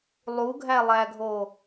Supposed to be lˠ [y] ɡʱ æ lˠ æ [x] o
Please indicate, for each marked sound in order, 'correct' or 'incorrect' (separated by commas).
incorrect, incorrect